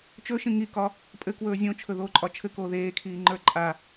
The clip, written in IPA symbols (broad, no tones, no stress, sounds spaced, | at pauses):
t͡ʃ ɵ ʃ ĩ ŋ i k ɒ | pʼ ɘ k w ɵː zʲ õ t͡ʃʰ ɵ ð oː ǃʼ ɒ t͡ʃʰ ɘ k oː ð eː kʰ iː ŋ͡ǃ ə˞ ǃʼ a